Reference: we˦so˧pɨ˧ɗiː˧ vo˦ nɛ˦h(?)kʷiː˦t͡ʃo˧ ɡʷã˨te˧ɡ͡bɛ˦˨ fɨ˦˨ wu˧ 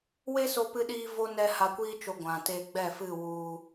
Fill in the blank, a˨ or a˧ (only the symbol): a˧